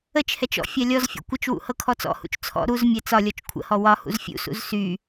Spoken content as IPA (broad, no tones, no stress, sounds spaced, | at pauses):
ə t͡ʃ h ɛ t͡ʃ ɔ̰ fʲ a lʲ ɔ z fʲ ṵ kʷ ə t͡ʃ w ṵ h ɤ kʰ ɔ t͡s ɔ̰ h ṵ t͡ʃ t͡sʰ ɔ̰ ɾ u z mʲ ɛ t͡s ɒ lʲ ɔ t͡ʃ kʷʰ ə̰ h ɔ w ɒ h ṵ z fʲ ṵ s ṵ z s y